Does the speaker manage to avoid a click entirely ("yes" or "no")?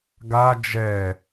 yes